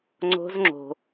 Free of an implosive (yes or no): yes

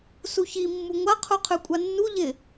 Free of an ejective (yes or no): no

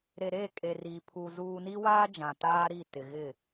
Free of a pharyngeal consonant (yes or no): yes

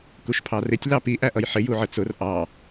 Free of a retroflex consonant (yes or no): yes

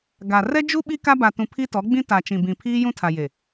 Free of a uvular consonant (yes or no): yes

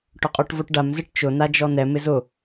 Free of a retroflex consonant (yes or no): no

